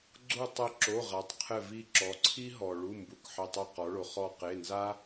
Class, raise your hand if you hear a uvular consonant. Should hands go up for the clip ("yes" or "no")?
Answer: yes